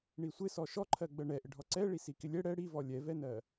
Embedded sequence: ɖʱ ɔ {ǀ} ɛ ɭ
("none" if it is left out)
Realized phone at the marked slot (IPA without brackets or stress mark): ǀ